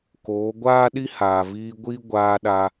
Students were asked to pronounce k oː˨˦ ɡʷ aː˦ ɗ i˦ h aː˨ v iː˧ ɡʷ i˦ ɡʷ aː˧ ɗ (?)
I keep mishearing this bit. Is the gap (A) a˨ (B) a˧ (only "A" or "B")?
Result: B